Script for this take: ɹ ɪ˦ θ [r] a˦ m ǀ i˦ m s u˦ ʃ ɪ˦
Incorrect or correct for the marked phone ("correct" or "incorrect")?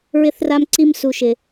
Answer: correct